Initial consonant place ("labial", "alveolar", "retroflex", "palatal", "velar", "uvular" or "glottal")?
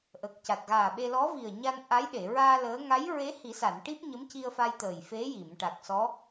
glottal